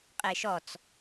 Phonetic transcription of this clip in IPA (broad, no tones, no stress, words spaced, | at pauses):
qʼeʃɔt͡s